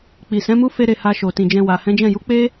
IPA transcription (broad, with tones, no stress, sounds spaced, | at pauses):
k͡p i˨ s ɛ̃˨˦ m u˦ f e˦ ɾ e˧ h a˧ ʃ o˨ t ĩ˨ d͡ʒ ɛ̃˧ w a˨ h ɛ̃˨˦ d͡ʒ ɛ̃˦˨ j u˨˦ k͡p e˦